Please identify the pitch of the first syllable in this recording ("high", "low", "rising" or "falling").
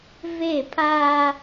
falling